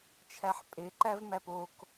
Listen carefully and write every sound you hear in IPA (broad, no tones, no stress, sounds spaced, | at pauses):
t͡ʃʰ æ ħ pʼ e ǃ æ v m æ p o k